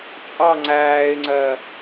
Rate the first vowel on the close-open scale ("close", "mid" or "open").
open